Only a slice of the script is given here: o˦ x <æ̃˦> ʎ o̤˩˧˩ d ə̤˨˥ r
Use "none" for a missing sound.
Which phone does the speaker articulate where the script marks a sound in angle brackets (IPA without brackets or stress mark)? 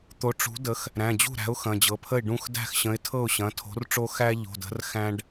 æ˦